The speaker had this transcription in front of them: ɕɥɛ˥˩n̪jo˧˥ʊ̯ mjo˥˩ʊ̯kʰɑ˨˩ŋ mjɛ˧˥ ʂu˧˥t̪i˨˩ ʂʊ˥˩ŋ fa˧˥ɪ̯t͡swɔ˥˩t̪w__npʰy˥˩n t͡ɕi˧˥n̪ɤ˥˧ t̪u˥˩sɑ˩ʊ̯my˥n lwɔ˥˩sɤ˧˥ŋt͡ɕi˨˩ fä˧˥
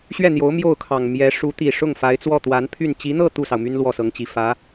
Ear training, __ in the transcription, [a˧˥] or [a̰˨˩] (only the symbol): a˧˥